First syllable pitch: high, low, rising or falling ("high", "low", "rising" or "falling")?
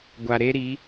low